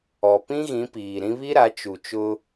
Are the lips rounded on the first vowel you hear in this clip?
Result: yes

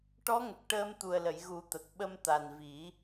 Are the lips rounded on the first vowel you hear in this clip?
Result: yes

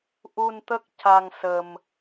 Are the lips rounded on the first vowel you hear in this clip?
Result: yes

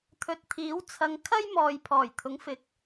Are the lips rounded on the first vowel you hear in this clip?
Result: yes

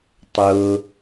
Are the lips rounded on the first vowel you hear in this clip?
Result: yes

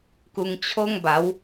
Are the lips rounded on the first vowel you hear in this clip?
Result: yes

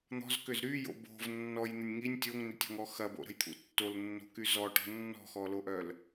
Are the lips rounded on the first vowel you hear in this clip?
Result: yes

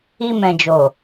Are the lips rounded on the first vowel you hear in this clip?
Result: no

